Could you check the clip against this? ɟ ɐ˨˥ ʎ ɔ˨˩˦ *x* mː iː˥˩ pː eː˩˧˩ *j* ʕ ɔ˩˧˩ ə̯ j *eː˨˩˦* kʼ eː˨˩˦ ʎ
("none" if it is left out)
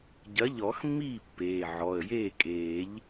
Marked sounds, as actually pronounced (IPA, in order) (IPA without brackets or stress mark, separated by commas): x, none, eː˥˩